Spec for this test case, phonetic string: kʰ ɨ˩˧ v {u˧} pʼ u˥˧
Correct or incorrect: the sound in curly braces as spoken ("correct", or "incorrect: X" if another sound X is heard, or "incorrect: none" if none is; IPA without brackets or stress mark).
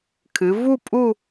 incorrect: u˥˧